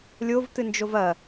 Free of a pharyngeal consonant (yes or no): yes